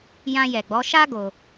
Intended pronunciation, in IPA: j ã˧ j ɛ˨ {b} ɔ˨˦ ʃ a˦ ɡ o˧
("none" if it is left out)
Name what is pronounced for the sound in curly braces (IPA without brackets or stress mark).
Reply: ɡ͡b